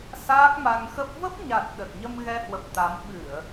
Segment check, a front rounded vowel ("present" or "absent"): absent